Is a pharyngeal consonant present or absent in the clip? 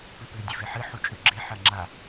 present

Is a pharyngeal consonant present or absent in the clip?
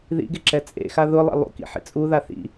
present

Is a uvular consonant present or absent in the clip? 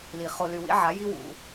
present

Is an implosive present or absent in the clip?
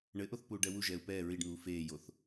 absent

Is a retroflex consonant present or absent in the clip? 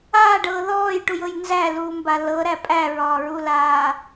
present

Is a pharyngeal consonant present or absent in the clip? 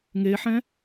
present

